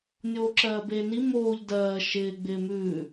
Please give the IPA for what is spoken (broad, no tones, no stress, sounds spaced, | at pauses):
nʲ oː ǁ ɜː b eː n i m oː ʎ d ɜː ʃ ɪː ɡ͡b ɪː m ʉː